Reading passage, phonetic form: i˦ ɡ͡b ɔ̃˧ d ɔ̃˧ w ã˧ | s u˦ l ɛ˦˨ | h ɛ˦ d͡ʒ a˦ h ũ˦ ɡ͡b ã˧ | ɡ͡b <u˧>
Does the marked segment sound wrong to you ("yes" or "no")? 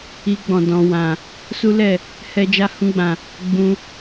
yes